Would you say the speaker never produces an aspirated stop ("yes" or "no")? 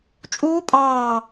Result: yes